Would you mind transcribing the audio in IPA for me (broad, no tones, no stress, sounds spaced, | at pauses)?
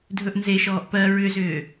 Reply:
dʱ ɵ ʔ n z e ʃ ɔː ʔ p ɜ ɹ ʏ z ʏː